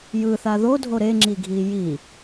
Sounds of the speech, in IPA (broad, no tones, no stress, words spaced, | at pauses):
jɯθa ðodʱo ɾeŋ͡ǁiɡʱi ji